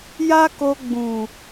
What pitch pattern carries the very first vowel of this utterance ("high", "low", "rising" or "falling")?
high